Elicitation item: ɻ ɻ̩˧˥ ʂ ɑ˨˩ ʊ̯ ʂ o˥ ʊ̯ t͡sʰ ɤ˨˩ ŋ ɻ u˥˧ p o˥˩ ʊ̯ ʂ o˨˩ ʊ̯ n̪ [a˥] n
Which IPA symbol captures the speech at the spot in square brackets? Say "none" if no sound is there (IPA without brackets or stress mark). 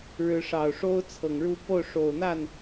a˥˩